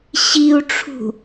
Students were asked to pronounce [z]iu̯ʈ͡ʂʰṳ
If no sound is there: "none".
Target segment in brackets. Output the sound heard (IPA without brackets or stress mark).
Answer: ɕ